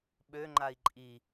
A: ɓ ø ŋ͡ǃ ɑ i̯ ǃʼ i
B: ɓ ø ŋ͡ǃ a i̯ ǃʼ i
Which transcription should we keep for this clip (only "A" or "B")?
B